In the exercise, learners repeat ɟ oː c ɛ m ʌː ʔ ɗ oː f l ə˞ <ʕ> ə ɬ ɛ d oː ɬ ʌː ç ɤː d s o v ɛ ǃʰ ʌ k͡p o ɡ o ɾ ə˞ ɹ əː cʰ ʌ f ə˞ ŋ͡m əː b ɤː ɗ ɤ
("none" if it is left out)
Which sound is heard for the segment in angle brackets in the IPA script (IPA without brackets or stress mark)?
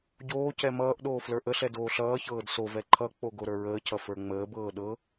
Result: ʔ